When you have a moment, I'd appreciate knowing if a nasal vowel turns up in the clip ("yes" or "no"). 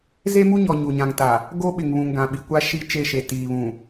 yes